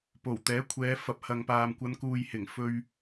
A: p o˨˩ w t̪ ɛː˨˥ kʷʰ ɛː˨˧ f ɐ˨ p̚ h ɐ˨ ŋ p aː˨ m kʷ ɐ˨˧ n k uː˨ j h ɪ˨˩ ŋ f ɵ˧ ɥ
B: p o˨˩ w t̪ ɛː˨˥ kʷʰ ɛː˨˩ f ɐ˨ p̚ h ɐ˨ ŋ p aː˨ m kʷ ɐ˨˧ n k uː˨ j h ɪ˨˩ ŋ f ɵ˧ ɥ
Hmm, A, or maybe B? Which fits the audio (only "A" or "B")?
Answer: A